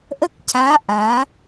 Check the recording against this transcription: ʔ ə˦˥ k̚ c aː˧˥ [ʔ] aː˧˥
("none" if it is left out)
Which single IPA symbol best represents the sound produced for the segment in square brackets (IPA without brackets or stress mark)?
ʔ